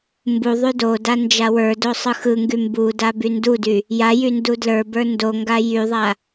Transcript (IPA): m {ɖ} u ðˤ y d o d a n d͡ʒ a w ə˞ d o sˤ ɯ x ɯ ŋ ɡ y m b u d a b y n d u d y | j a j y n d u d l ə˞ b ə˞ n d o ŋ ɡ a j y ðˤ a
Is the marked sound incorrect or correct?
incorrect: b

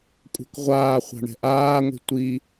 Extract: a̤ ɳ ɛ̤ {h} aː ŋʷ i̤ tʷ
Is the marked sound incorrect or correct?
incorrect: ʔ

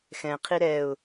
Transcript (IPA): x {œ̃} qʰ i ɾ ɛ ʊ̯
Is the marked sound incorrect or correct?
incorrect: ɛ̃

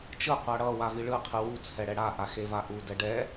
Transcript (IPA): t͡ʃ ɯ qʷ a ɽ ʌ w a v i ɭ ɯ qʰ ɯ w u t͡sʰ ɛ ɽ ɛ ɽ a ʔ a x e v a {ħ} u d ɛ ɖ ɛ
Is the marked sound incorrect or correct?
incorrect: ʔ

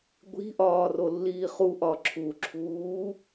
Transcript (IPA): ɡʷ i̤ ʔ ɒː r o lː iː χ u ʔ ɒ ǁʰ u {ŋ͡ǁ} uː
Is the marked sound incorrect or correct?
incorrect: ǁʰ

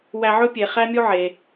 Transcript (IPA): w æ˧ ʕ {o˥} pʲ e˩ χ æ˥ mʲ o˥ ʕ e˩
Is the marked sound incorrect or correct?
incorrect: ɵ˥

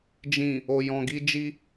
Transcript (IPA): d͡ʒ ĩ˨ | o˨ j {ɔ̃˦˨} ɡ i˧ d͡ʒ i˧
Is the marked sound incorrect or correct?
incorrect: ɔ̃˨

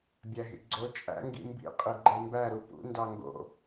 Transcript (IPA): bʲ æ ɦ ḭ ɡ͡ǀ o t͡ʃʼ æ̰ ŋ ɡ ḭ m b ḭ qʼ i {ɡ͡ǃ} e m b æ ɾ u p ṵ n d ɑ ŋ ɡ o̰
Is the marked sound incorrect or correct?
correct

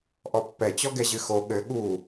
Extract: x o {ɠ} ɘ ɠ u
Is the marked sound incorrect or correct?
correct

